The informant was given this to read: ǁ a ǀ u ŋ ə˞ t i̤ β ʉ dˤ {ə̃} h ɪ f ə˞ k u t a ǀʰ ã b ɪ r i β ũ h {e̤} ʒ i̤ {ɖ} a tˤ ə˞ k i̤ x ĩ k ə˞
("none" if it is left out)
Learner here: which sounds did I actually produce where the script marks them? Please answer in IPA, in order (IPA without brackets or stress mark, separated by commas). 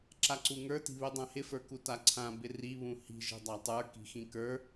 ã, i̤, dˤ